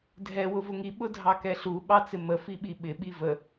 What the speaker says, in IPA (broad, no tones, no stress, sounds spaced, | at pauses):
dʱ ɛ w ʊ v ʊ ŋ i ɓ ʊ dʱ ɑ k ɛ ɬ u ɓ ɑ t͡s ɪ m ə f i ɓ i ɓ ɪ ɓ i v ə